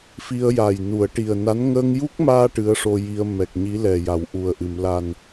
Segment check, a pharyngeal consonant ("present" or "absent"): absent